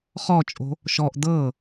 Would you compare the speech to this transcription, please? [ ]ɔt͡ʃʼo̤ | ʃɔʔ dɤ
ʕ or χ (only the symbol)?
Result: χ